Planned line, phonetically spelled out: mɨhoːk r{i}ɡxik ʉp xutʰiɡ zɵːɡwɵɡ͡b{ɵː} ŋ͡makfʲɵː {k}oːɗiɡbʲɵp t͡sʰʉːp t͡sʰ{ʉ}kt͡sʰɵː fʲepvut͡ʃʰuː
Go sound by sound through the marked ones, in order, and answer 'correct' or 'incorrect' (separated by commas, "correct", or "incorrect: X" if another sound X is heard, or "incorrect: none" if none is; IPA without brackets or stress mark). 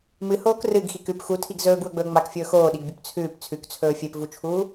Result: incorrect: ɨ, correct, incorrect: x, correct